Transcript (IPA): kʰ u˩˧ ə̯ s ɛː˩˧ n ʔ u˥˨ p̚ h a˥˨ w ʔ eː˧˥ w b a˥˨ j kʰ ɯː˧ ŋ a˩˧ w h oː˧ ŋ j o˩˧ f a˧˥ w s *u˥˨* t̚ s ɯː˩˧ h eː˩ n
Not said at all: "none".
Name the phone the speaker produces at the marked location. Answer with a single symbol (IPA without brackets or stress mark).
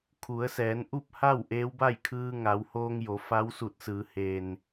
u˧˩